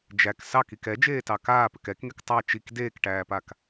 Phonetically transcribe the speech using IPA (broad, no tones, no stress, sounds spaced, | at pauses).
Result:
d͡ʒ æ k s ɑ k i k ɛ d͡ʒ eː t ɑ k aː p ʏ k ɛ k ŋ e k tˤ æ t͡ʃ i k d eː k ʈ æː p a k